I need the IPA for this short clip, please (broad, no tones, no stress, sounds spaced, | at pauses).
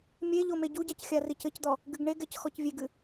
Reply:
mʲ e ʎ o m e ɟ u ɟ a c xʲ a r i c ɘ c d̪ ɔ | ɡ ɨ ɡ ɳ e ɡ ɛ c x ɔ c vʲ e ɡ ɨ